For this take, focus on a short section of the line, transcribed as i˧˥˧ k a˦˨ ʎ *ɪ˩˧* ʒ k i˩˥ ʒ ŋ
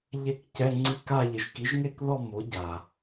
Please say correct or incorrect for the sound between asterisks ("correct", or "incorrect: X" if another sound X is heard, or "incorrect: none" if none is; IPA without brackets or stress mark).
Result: correct